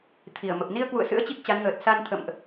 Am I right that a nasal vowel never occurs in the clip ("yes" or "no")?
yes